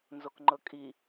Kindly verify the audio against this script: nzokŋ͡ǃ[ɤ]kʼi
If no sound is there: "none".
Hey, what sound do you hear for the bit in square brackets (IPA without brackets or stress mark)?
ɤ